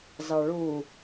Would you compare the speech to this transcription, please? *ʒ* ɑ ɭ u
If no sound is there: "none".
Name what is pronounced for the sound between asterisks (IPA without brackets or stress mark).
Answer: z